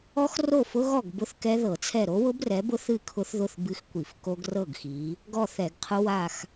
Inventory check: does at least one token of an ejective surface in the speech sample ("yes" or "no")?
no